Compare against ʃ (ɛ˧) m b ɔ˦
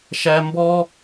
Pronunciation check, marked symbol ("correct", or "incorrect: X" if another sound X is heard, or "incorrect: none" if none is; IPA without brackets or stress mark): incorrect: æ˧